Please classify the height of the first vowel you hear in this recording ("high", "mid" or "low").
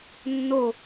mid